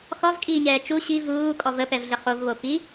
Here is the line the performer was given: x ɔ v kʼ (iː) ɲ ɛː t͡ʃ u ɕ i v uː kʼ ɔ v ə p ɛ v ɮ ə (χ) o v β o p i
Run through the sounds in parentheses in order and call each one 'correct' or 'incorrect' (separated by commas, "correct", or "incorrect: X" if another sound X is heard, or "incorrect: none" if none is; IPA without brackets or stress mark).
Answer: correct, correct